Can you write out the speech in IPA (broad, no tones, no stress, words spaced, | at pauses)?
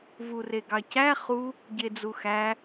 vureɡɑcæ χu | ɟed͡zuxæ